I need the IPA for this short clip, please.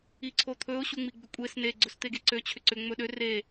i ǀʰ o t̪ʰ ɵ ʊ̯ ɕ u ŋ͡m i ɡ͡b ʏ kʷʼ e s n e ɡ͡ǀ ɵ s t̪ e ɡ e ǀ ø t͡ɕʰ ʏ ǀ ʏ ŋ͡m ɵ ɗ ø r e

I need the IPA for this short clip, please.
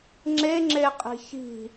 ŋ͡ǁ e ŋ͡ǁ e qʼ i̤ ç i̤

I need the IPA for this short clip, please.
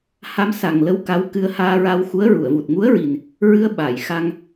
h a˧ m s a˨˩ ŋ l ə˧˥ w k a˧˥ w k ɨ˧ ə̯ h aː˧ ɹ a˧ w x u˧˥ ə̯ ɹ u˨˩˨ ə̯ v u˨˩ t̚ ŋ u˧˥ ə̯ ɹ i˨˩ n | ɹ ɨ˧ ə̯ ɓ a˨˩˨ j x a˧ ŋ

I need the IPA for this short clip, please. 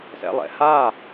s ɛ̰ lˠ ɛ̰ h a

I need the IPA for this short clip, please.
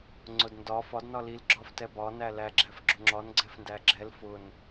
ŋ͡ǀ ʊ d n d ɒ f ɒ d n ɒ l i l ɡ͡ǁ ɒ f t ɛ b ɒ n æ l æ ɡ͡ǁ æ f ɡ͡ǁ ʊ ŋ͡ǁ ɒ n ɡ͡ǀ ɛ f n d æ ɡ͡ǁ ɛ l f ʊ n

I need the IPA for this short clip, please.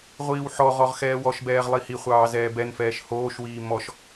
ʁʷ iː w ħ ɔ ʁ ɔ ʁ x ɛː w ɔ ʃ b ɛː ʁ lˠ i h i χʷ ɑː z ɛː b ɛ n f ɛː ʃ h oː ʃ w iː m ɔ ʃ

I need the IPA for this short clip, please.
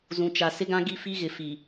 z ũ˨ t͡ʃ a˨ s ɪ˦ ɡ ã˦ ɡ i˦˨ f i˦ ɣ ɪ˨ f i˨

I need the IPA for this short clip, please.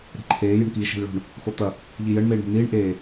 ɾ e̤ ǃʰ eː j ə̤ ɳ k iː ʃ e̤ l ɭ o̤ ɳ | x o t̪ ɐ | ʎ i j ə ɳ m eː ɳ ɾ e̤ n̪ iː ɳ ʔ eː

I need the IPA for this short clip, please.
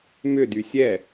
m ʏ d y sʲ ɛ

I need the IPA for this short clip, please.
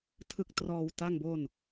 tʰ ɯ˦˥ k̚ t r ɔː˧ w t a˥˩ ŋ b o˥˩ n

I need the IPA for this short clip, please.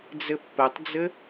d͡z ɘ pː ɘ tˤ d͡z ɘ

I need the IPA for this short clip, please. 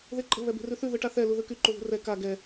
ð e ǃʼ ə̤ β ɛ b e̤ r ʉ θ ʉ ð ɯ ʈ a θ ɛ l u ð ɯ k y ǃ u ð ṳ r ɛ k a ɡ ɛ

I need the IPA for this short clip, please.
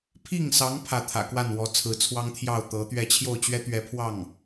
pʰ i˥˩ ŋ s ɑ˧˥ ŋ pʰ ä˥˩ t̪ʰ ä̰˨˩ k w a˥˩ n w ɔ˧˥ t͡sʰ ɹ̩˧˥ t͡sʰ w ɑ˥ ŋ t̪ʰ j ɑ˥˩ ʊ̯ t̪ ɤ˧˥ t̪ ɥ ɛ˥˧ t͡ɕʰ j o˥˩ ʊ̯ t͡ɕ ɥ ɛ˥ t̪ ɥ ɛ˧˥ pʰ w ɑ˥˩ ŋ

